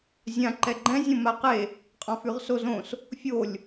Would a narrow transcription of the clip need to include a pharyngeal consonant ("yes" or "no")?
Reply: no